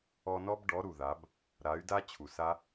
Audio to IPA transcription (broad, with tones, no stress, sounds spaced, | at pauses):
ɔ˧ n ɔ˦ b ɖ ɔ˨˦ ɾ u˨ ð a˨˦ b | ɾ a˨˦ y̯ d a˦ t͡ɕʰ u˨ s a˦